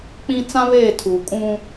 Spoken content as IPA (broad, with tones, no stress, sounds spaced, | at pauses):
k͡p ĩ˦ t͡s ã˦ β eː˦˨ tʰ uː˨ kʼ ũ˦